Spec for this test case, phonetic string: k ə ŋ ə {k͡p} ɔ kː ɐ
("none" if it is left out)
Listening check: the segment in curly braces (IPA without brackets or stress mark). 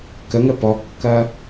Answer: p